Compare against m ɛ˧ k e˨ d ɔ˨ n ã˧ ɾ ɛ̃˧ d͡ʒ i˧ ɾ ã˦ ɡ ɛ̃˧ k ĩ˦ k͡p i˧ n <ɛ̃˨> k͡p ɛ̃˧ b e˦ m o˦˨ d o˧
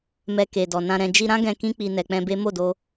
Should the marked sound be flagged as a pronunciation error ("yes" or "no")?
yes